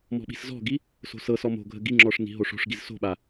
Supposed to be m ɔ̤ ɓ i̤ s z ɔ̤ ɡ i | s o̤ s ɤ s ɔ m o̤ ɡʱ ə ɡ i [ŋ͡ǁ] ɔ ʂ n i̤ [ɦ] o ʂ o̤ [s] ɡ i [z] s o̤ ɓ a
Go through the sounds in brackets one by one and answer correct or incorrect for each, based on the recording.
correct, correct, incorrect, correct

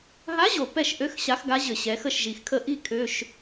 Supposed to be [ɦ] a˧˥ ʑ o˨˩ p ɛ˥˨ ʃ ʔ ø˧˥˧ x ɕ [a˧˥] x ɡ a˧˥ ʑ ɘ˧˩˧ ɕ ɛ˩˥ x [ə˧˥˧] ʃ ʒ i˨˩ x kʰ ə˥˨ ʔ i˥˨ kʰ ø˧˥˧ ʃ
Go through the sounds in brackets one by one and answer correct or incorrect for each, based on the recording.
correct, correct, incorrect

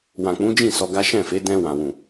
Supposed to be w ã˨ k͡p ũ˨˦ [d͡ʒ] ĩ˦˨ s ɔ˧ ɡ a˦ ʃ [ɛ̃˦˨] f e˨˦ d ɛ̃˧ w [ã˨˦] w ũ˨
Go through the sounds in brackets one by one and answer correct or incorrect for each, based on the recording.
correct, correct, incorrect

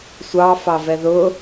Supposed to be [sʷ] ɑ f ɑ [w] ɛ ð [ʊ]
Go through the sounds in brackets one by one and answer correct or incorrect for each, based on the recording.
correct, incorrect, correct

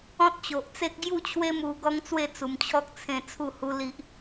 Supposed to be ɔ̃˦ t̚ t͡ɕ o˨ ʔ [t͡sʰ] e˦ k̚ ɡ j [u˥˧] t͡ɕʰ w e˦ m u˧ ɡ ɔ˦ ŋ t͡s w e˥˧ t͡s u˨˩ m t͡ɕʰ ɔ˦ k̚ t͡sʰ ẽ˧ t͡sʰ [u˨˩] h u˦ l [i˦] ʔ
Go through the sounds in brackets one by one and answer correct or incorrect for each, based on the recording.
incorrect, correct, incorrect, correct

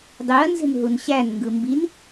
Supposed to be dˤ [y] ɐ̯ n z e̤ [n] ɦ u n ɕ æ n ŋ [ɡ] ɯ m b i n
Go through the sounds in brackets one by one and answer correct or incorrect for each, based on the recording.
correct, correct, correct

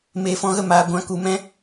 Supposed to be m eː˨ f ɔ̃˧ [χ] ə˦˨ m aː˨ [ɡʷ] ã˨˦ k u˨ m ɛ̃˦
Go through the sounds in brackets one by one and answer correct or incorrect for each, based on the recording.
incorrect, correct

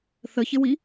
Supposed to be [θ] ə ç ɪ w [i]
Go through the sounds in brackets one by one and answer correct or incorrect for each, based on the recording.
correct, correct

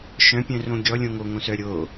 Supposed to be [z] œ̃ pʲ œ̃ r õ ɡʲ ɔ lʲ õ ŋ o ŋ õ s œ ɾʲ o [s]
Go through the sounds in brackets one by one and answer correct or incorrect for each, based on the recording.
incorrect, incorrect

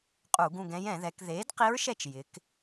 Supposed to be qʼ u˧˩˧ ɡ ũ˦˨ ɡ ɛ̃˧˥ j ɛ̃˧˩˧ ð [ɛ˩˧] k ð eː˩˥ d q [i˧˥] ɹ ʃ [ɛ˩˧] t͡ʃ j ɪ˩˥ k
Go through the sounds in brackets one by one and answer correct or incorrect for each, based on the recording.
correct, correct, incorrect

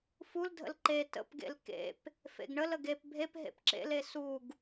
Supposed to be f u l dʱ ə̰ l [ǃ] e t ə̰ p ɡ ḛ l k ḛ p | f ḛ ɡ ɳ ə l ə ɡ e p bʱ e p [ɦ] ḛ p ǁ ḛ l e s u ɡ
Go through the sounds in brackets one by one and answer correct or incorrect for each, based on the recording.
correct, correct

